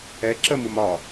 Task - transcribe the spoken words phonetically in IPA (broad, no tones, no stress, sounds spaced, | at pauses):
ɛ ǁ ə m u m ɒ